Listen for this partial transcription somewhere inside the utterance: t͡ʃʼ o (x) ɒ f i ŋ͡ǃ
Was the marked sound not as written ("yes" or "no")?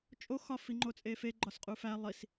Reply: no